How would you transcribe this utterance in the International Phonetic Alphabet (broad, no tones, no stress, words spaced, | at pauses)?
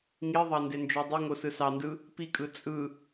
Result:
ŋiðˤɑ ndend͡ʒodˤiŋo sɯsɑndɯ | pikʼɯ t͡sʼɯ